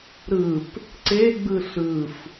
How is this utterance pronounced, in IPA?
ɾ ɯ p | ǀ e ɡ͡b ɯ ɬ ɯ f

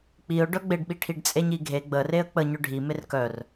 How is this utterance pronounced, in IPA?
k͡p i ʊ̯ ɖ œ ɡ͡b e ɖ ɓ i ʈʰ i ɖ t͡sʼ e ɲ i ɡʱ e ɡ͡b ə r e ə̯ k͡p ə ɲ œ ɖʱ i m e r k œ r

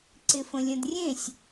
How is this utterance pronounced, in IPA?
ǀ ɪ f ə̃ lʲ ə̃ d rʲ ẽ sʲ

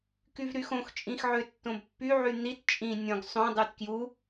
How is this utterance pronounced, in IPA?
k y v ɾ y x õ x t͡ʃʼ ĩ x ʕ ø tː õ b pː y ʕ y n̪ i t t͡ʃʼ ĩ nʲ õ ɡ sˤ õ dˤ y t k j u

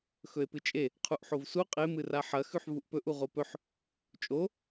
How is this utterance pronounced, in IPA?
x ɵ e̯ p ɨ t͡ʃʼ e | qʰ u ʔ ħ o v s u qʼ e m ɨ r a ħ ɐ x ʉ ħ v u ʔ p ɵ ʔ u ʁ o p ɵ ħ | t͡ʃʼ o

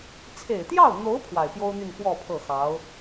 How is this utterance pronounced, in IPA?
t͡sʰ e˨˩ ɪ̯ t̪ j ɑ˥˩ ʊ̯ n̪ o˧˥ ʊ̯ pʰ w a˨˩ ɪ̯ p j o˥ ʊ̯ n̪ y˥˧ n p w ɔ˥˧ pʰ ɤ˥˩ x ɑ˧˥ ʊ̯

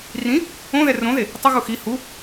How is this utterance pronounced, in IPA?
r ĩ | õ ð ɛ r õ ð e | tˤ ɘ ɣ u x i h u

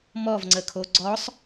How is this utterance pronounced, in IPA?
m ɔ v ŋ͡ǀ ə kʰ o ɡ͡ǀ ɔ sˤ

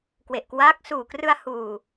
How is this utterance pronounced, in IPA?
k w e˨˩ ʔ k w aː˦˥ k̚ s uː˨˩ k r ɯ˧ a̯ h uː˨˩

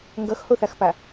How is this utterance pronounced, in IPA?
ŋ ɡ ʌ x h o θ a x p a

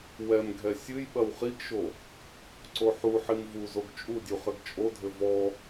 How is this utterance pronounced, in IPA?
w ɛ m ɡʱ ɛ sʲ ɨ j ɓ ɐ w χ i ɡ ʃ o | ǀ o ħ u ħ i m v u z o ɡ t͡ʃʼ u dʲ u χ ɘ ɡ t͡ʃʼ o dʱ ɘ v ɔ

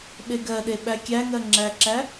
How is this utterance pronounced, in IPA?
ɓ e ɡ ɜ ɗ e ɓ æ kʲ æ ŋ ɜ ŋ͡ǁ æ ǁ æ

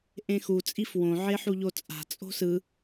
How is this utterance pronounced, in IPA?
ʔ ẽ x u t͡sʼ i f w õ ʕ e ħ u ʎ o t͡sʼ a̤ t͡sʼ o̤ s ɯ

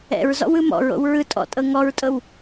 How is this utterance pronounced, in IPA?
ɛ̰ ɹ z ɔ̰ w ɯ m ɔ̰ ɹ o̰ w ɹ ɯ tʼ ɔ̰ tʼ ɤ ŋ ɔ ɹ tʼ ɤ w

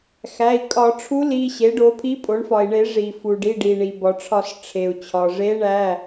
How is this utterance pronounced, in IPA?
x æ˩˧˩ i̯ kʼ ɒ˧˩˧ ʈ͡ʂʰ u˧˥ l i˩˧˩ ɕ e˩˥ ɖ o˩˥ pʰ i˧˥ pʼ o˩˥ ɳ f ɒ˩ i̯ ɳ e˧˩˧ ʐ i˩ f u˩ ɖ i˩˧˩ ɖ i˩ ɳ i˩ b ɒ˩ ʈ͡ʂʰ ɒ˧˩˧ s ʈ͡ʂʰ e˩ u̯ t͡ɕʰ ɒ˩ ʐ e˧˥ ɳ æ˩˧˩

